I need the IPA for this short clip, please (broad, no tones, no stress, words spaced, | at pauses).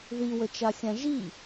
ðiwət͡ʃaxʲã ʒi